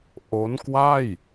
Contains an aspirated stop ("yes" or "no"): no